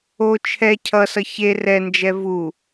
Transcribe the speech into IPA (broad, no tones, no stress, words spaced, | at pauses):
o t͡ʃʰɛ cʰʌsʌ çe rɛnd͡ʒɛ vu